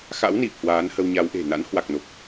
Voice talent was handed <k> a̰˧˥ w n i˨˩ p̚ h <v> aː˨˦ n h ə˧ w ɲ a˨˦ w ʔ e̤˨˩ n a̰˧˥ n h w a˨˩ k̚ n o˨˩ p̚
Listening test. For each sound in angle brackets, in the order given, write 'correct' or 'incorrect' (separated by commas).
incorrect, incorrect